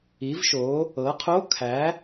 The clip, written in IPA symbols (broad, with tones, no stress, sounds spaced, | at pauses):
i˩˥ v ʃ o˩˥ | ɤ˩˥ qʰ o˧˥˧ kʰ æ˩˥